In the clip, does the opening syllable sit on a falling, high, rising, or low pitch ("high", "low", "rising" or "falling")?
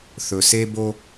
low